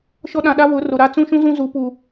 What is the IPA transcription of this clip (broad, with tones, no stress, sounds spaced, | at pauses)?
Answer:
ʃ ɔ˦ ɗ ã˨ ɗ a˦ β ʊ˨˦ r o˨ ɾ a˦ t͡s ũ˦ ʃ ũ˦ z ũ˦ z u˨˦ p u˨